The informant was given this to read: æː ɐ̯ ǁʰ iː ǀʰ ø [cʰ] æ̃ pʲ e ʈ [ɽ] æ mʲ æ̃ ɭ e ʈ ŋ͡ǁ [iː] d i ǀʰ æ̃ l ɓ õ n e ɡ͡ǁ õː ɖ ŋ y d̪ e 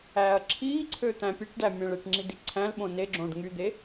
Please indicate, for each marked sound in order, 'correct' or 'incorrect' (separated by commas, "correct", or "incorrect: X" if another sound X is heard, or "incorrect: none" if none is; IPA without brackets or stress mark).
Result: incorrect: t̪, incorrect: ɖ, incorrect: i